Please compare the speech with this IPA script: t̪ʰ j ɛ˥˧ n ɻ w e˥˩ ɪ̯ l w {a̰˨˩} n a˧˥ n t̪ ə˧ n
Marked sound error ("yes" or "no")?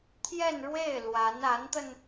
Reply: yes